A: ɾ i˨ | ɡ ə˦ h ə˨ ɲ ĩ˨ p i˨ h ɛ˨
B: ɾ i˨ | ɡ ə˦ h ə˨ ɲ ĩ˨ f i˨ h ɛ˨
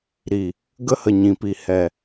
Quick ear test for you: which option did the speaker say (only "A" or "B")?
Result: A